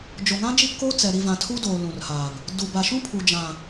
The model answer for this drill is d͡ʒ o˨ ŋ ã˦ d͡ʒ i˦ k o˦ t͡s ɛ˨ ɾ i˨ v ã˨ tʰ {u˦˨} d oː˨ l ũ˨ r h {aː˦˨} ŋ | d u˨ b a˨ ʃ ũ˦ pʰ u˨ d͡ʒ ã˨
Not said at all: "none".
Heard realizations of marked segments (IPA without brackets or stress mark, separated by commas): u˦, aː˨